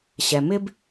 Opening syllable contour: low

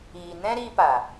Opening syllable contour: low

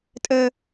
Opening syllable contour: high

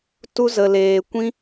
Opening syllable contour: high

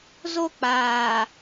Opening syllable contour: falling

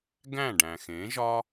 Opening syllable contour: falling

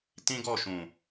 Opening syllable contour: high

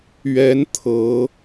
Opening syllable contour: rising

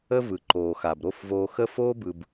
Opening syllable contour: high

